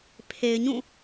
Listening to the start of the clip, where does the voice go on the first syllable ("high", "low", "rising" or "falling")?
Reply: low